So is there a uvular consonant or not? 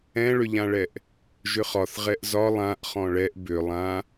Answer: yes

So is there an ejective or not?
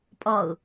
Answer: yes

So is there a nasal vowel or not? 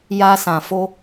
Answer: yes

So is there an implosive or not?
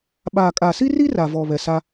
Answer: yes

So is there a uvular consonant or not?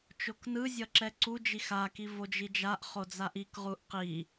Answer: yes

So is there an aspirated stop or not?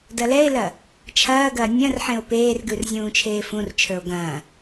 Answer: yes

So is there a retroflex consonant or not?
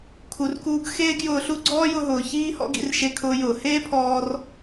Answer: no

